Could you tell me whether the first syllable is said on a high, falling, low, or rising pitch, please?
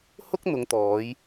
high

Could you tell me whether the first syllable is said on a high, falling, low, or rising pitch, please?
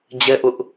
high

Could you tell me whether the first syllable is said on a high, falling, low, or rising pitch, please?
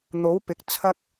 rising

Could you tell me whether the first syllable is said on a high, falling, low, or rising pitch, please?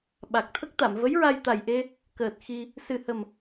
low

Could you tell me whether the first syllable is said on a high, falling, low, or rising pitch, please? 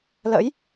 rising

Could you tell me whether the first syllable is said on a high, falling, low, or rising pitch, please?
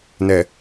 low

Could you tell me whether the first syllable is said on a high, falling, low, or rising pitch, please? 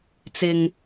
low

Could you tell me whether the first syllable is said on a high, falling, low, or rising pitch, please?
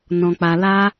low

